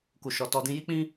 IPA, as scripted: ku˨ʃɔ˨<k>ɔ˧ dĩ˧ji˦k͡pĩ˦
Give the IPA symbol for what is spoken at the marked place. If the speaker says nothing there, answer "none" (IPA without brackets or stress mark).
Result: t